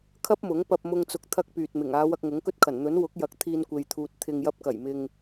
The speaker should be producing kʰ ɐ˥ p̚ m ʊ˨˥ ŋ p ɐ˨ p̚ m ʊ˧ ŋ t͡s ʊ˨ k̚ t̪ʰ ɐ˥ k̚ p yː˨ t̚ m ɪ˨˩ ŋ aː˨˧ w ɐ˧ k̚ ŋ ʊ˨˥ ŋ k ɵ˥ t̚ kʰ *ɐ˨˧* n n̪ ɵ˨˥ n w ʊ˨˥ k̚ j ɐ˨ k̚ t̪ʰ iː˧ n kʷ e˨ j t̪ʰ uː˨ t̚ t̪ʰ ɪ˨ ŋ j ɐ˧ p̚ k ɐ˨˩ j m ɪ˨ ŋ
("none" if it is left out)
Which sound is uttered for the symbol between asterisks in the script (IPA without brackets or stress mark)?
ɐ˨˩